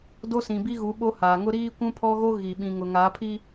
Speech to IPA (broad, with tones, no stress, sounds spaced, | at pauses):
d o˦ s ĩ˨ b i˦ ɣ u˨˦ ɓ o˦ h aː˨ ŋ ʊ˦ ɾ iː˦ kʷ ũ˦ pʰ ɔ˦ ɣ o˦ ɣ i˨ ɓ ĩ˨ ŋ ʊ˨ ŋ aː˨˦ pʰ i˦